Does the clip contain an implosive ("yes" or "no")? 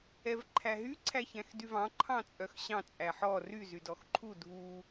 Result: no